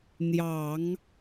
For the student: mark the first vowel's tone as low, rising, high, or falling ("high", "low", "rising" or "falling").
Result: low